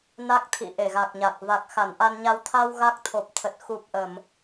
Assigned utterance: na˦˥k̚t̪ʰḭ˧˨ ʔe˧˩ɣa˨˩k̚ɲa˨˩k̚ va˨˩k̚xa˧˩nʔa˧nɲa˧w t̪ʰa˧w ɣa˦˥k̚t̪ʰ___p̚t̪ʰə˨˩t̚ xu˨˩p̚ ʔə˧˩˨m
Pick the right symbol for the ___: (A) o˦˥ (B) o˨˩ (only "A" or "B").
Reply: B